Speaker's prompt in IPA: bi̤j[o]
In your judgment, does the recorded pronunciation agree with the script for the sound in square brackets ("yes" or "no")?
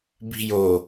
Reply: yes